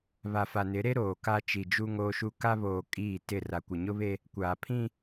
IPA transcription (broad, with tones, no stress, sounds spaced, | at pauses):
β a˨ f a˨ n ɪ˨˦ ɾ e˦ ɾ oː˨ k a˦ t͡ʃ i˨ d͡ʒ u˦ ŋ oː˦ ʃ u˦ k a˦ β oː˨ kʼ iː˦˨ t ɪ˦˨ r a˨ kʷ ɪ˨ ɲ ʊ˦ β e˦ | kʷ aː˨ pʰ ĩ˦